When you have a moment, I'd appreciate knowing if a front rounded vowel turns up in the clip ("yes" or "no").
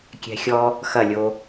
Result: no